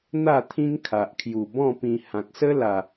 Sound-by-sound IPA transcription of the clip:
n̪ a˥˧ t̪ʰ ĩ˦ ŋ kʰ a˨ ʔ kʰ j u˨˩ b ɔ̃˥˧ p ĩ˧ h ã˨ k̚ s ə˦ l a˨˩

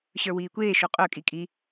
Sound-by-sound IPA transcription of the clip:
ɕ ə˞ w iː kʷ eː ʃ o qʼ œ kʼ i kʼ i

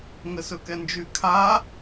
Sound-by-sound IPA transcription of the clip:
ŋ ə s ɵ k ɛ n d͡ʒ y kʰ a

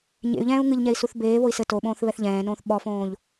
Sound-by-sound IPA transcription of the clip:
ɲ ḛ y̯ ʎ ɛ̃ː u̯ ŋ ɨ ʎ ɲ ɛ i̯ s u θ b eː β o i̯ s ɘ t o ɓ õː θ β ɛ θ ʎ ɛ̃ː n õː θ ɓ ɔ f õː ʎ

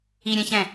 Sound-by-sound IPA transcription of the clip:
i ɾʲ ɛ̃ ç ɛ̃

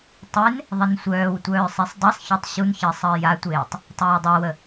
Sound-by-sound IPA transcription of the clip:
tˤ e n | ðˤ ə n sʷ œː w tʷ œː sˤ e sˤ dˤ ɛ sˤ ç œ tˤ ɕ u n ç əː sˤ əː j a tʷ eː tˤ | tˤ œː dˤ ɛ w ə

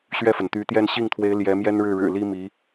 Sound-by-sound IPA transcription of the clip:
ɕ ɥ ɛ˥˩ f ə˩ n t̪ y˧˥ t̪ j ɛ˥˧ n ɕ i˥˩ ŋ t̪ʰ w e˧˥ ɪ̯ l j ɛ˧˥ m j ɛ˥ n ɻ ɻ̩˥˩ ɻ ɻ̩˨˩ l i˥ m i˧˥

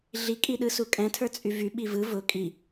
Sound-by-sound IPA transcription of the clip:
ɮ i kʼ i ɗ ɯ s u kʼ ɛ̃ tʰ ə˞ t͡sʼ y v y ɓ i v ɯ v ʊ kʼ i

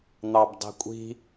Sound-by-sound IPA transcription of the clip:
n̪ ɑ b dˤ i̤ kʷʼ i̤

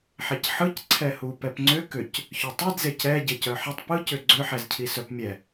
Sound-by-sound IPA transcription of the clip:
ħ e c ħ ɯ c ǀʰ ɛ h u p ɛ p ŋ͡ǀ ʏ k ʏ c | ç œ tˤ ɯ d z e c ɛ ɟ e c œ ħ ɛ tˤ p ɯ c ʏ ɡ͡ǀ ʏ ħ ɛ z cʰ i s œ p mʲ ɛ

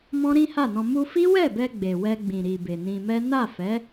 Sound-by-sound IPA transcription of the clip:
m ɔ̃˦ ɾ ĩ˦ h a˦˨ n ɔ̃˧ m u˧ f i˦ w ɛ˦˨ b ɛ˧ ɡ͡b e˨ w ɛ˧ ɡ͡b ĩ˨ ɾ i˨ b e˨ n ĩ˧ m ɛ˦ n a˦˨ f ɛ˨˦

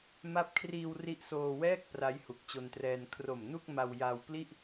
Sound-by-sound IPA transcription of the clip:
m a˦˥ p̚ kʰ r iː˧ w r i˦˥ ʔ s oː˧ w ɛː˥˩ k̚ p r a˦˥ j h u˨˩ k̚ t͡ɕ o˧ n t r ɛː˧ n kʰ r o˨˩ m n u˥˩ k̚ m a˧ w j a˧ w p l i˥˩ ʔ

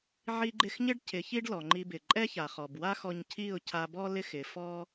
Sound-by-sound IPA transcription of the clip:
ʕ i˧ ɡ͡ǃ ɪ˧ x ɲ ɪ˦ ɖ cʰ ɪ˨˦ ç i˦ ɖ l ɔ˨ ŋ͡ǃ i˧ b ɪ˨ ǃʼ ɛ˦ ç a˨ χ ɔ˨ b w a˦ x ɔ˧ ɲ cʰ i˦˨ ʊ̯ cʰ a˧ b ɔ˦ l ɪ˦ x ɪ˨˦ f ɔ˦

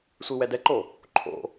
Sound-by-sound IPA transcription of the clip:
sʷ i w ɛ d ɛ ǃ o | ǃʰ o̰

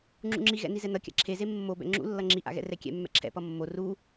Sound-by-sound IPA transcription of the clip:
ŋ͡ǁ ṵ ŋ͡ǁ i ɣ ɛ̰ n i z ɛ n ʌ kʲ a̰ ǁʰ e z e mː o b ɛ̰ ŋ͡ǁ ṵ lː ʌ ŋ͡ǁ i ʔ a̰ ɣ ɛ̰ r ɛ kʲ ɛ̰ mː ɛ̰ ǁʰ ɛ̰ p ʌ mː o r u

